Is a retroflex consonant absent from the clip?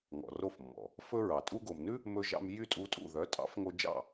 yes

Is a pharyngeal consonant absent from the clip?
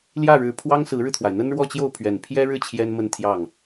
yes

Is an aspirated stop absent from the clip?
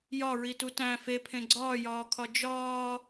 no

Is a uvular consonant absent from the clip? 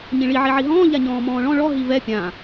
yes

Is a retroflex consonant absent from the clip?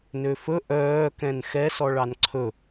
no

